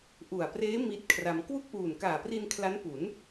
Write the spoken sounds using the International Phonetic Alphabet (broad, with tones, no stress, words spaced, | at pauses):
ʔu˨˩a̯preː˦˥ mi˦˥t̚kʰra˧m kwu˥˩k̚ʔuː˨˩nkaː˨˩pri˧n kʰla˦˥n pu˩˦n